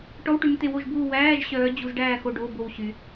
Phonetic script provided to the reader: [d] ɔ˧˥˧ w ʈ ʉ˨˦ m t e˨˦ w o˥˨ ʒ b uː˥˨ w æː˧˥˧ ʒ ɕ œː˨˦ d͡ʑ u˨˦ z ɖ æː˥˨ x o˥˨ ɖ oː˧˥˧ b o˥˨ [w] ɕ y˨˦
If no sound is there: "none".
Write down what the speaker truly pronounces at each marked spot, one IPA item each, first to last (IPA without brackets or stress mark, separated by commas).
ʈ, w